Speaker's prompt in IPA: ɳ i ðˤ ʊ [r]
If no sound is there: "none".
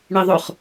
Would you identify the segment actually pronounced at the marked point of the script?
χ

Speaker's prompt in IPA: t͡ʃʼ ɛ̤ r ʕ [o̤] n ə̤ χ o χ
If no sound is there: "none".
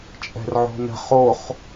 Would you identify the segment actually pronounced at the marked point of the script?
o̤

